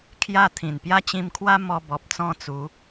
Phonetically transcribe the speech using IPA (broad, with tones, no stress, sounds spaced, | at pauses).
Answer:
kʰ j a˥˧ t̪ʰ ĩ˨˩ n p j a˥˧ t͡ɕ ĩ˧ m kʰ w a˦ m ɔ˧ b ɔ˨ p̚ t͡s ɔ̃˥˧ t͡s u˨˦